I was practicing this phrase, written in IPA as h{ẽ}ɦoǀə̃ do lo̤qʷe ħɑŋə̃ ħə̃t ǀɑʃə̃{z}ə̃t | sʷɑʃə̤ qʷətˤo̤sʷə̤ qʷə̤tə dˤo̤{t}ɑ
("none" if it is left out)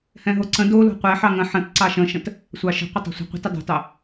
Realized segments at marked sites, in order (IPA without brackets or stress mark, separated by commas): ɛ̃, ʃ, t